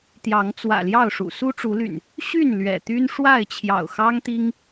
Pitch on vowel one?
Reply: rising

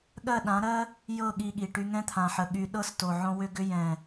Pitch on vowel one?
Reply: falling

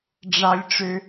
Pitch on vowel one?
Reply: low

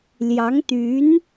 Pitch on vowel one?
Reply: rising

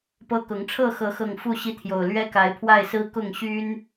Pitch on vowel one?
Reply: high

